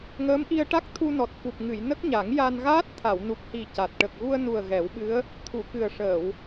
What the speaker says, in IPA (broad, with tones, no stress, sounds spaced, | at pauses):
ŋ əː˧˥ m ʔ i˧ ə̯ ʈ a˦˥ k̚ t̪ʰ u˧ n ɔ˨˩ t̚ f u˨˩ p̚ ŋ ɨ˨˩˨ j n ə˦˥ k̚ ɲ a˨˩˦ ŋ j a˧ n ɣ aː˦˥ t̚ t̪ʰ a˨˩˨ w n u˨˩ p̚ h i˨˩ c a˨˩ t̚ ʈ ə˨˩ k̚ ɣ u˧ ə̯ n u˨˩ ə̯ ɣ ɛ˨˩˦ w ɓ ɨ˧˥ ə̯ | t̪ʰ u˨˩˨ k ɨ˨˩ ə̯ ʂ əː˨˩˨ w